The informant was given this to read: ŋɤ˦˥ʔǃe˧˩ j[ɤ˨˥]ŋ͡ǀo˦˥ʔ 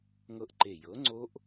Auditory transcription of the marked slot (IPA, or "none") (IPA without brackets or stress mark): ɤ˨˥